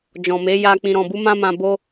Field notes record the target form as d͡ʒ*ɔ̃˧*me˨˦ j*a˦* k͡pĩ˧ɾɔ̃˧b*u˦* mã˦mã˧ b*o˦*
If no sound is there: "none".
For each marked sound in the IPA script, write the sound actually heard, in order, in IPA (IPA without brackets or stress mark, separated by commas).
ɔ̃˨, a˧, u˦, o˦